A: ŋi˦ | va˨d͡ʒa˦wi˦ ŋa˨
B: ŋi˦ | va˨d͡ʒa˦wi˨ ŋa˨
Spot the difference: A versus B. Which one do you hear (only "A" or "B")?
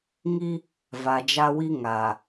A